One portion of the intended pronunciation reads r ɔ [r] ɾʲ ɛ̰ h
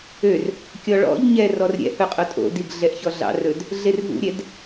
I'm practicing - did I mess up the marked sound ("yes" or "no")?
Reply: no